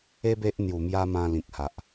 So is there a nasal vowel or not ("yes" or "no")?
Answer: yes